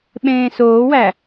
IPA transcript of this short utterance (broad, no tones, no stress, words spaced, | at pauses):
ɓẽːsoːwæ